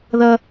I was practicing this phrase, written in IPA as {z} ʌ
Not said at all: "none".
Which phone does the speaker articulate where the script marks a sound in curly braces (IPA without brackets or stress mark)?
ð